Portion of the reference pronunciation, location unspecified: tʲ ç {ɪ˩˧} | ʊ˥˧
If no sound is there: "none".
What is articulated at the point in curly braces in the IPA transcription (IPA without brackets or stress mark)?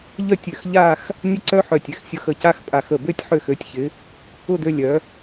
ɪ˩˧